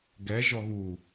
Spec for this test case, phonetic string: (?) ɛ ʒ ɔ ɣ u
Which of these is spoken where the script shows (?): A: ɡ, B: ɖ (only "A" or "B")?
A